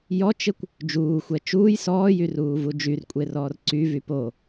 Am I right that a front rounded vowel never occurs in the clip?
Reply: no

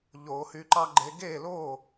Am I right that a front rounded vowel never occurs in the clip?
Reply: no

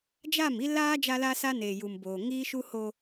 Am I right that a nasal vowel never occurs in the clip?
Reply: yes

